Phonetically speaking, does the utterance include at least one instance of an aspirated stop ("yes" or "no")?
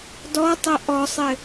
no